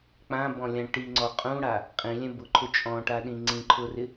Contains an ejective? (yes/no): yes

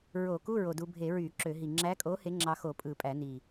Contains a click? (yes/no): yes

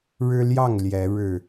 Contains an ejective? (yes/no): no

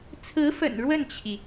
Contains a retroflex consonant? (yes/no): yes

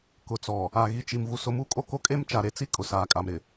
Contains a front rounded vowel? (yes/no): no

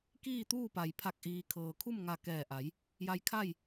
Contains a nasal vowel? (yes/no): no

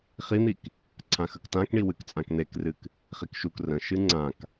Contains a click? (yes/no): yes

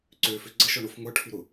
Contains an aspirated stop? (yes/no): yes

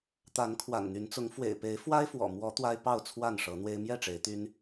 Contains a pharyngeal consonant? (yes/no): no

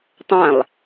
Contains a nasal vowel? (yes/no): yes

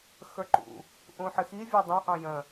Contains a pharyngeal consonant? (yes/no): yes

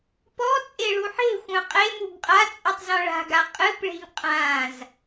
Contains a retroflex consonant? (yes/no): yes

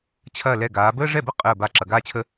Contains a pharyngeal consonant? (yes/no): no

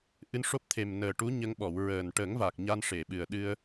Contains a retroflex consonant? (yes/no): yes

